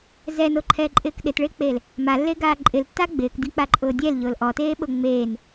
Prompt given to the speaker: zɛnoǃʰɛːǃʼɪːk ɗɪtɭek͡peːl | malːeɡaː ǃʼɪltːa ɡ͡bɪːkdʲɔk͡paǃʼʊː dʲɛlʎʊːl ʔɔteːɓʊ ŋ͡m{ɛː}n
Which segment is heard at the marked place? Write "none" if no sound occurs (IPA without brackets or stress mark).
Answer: eː